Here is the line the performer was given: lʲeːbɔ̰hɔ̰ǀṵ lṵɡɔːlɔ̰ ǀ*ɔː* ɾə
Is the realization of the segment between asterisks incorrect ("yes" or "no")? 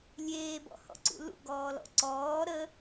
no